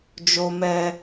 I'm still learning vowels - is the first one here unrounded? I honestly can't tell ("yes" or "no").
no